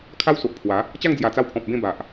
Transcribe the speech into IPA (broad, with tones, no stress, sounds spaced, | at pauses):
kʰ a˦ w s o˨ ʔ pʰ w a˨˦ | t͡ɕ a˥˧ ŋ d͡z j a˨˩ t͡s a˧ w pʰ ɔ̃˨ p̚ b ẽ˥˧ b a˨ ʔ